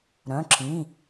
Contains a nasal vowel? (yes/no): yes